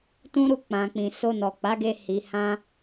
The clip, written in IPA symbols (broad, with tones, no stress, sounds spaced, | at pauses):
t ũ˦ ɾ u˦˨ k͡p ã˨ k͡p ĩ˨ s o˧ n ɔ˨ k͡p a˨˦ ɡ e˧ h i˨ h ã˧